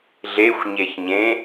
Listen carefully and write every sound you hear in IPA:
ɮ e xʷ ɲ e ç ɲ ẽ

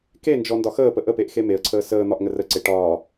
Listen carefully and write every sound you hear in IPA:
k e n d͡ʒ ɔ n d ɒ x əː p ə ʔ ə p e ʔ x e m e ə̯ ǀʰ əː s əː n̪ ɒ ʔ ŋ ə r ə ǀ e ʈ ɒː

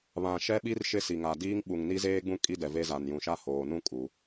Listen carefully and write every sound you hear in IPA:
β ã˨ ʃ ɛ˦ ɓ i˦ r ʃ ɪ˦ s i˨ ŋ a˨ d iː˦ ŋ ɓ u˨ ŋ n i˦ z eː˦ ɡ͡b ũ˦ kʼ i˦ d ɛ˨ v e˦ z a˨ n j ũ˨ ʃ a˦ h oː˨ n ũ˦ kʼ u˨˦

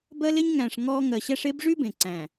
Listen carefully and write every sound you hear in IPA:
b ɜ˦ l e˦ ɲ ŋ æ̃˨ ʂ ŋ ɔ˦ ŋ ɜ˨ ɕ æ˦ ʂ e˦ b ʐ y˦ b ẽ˨ ǀ æ̃˨

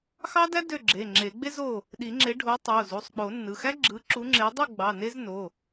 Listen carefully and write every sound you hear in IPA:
x ɑ˥ d æ˥ d ø˥˨ ɡ͡ǁ e˩˧˩ ŋ͡ǁ e˨˩˦ ɡ͡b e˥ z o˥˨ | ɗ i˨˩˦ ŋ͡ǁ e˨˥ ɖʱ o˨˥ tˤ o˩˧˩ z u˩˧˩ sˤ k͡p o˨˩˦ nː ɯ˩˧˩ x æ˥ ɡ͡ǁ ɯ˨˥ ǁ u˨˥ ŋ͡ǁ e˨˥ dˤ u˥˨ ɡ͡b ɑ˩˧˩ n e˥ z n o˩˧˩

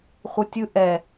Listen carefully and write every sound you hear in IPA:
χʷ ə tʲ ɯ ʔ ɛ

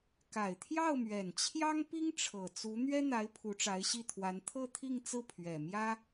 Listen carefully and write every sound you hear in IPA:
k a˨˩ ɪ̯ t̪ʰ j ɑ˥˩ ʊ̯ m ɥ ɛ˨˩ n t͡ɕʰ j ɑ˥ ŋ p i˥ ŋ ʈ͡ʂʰ ɤ˨˩ t͡s u˧˥ n̪ ɥ ɛ˥ n̪ a˧˥ ɪ̯ pʰ u˧˥ ʈ͡ʂ a˧˥ ɪ̯ ɕ i˥˩ t̪ʰ w a˧˥ n t̪ʰ ɤ˥˧ t̪ʰ i˥˧ ŋ t͡s ɹ̩˥˩ pʰ ɥ ɛ˨˩ m j ä˥

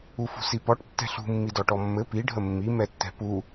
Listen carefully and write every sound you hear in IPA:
u f ṳ s i p ɔ ʈ tː ɛ̤ ɬ ṳ mː i d ɔ ʈ ɔ mː ɘ p i ɖʱ ə mː i m ɛ tː ɛ̤ p u

